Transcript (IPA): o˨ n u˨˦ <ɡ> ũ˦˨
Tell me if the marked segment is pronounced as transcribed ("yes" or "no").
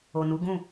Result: yes